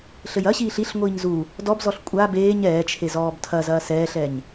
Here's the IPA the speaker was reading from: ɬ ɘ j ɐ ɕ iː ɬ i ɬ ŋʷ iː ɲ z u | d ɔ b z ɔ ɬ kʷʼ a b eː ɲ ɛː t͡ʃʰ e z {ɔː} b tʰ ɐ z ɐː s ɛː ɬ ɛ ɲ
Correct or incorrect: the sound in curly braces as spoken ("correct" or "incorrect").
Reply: correct